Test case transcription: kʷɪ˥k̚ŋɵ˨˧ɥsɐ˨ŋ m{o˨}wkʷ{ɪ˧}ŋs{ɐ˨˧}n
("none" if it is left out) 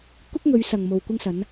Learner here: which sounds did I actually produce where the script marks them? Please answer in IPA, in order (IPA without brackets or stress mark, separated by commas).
o˨, ɪ˧, ɐ˨˧